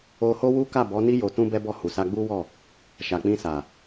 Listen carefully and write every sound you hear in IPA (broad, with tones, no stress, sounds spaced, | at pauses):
o˧ h o˦ w u˦ k a˦˨ b ɔ˨˦ n i˦ j o˧ t ũ˦ b ɛ˦ b ɔ˦˨ h u˨ s a˧ ɡ͡b u˦ w ɔ˦˨ | ʃ a˨ k͡p ĩ˧ s a˨